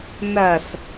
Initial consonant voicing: voiced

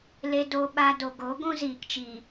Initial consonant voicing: voiced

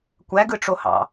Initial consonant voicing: voiceless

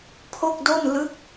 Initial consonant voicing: voiceless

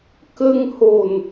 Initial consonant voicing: voiceless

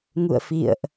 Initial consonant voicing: voiced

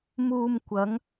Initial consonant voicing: voiced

